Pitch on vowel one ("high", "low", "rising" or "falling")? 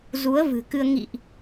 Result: rising